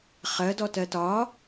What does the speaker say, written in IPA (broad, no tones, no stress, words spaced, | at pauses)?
χɜdɔtɜ tɒ